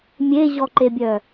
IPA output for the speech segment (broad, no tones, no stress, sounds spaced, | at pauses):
mʲ e ʑ ɔ ǃ e bʲ œ